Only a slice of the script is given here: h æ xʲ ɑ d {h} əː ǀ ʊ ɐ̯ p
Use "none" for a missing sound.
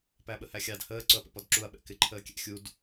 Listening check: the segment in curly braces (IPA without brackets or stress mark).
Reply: h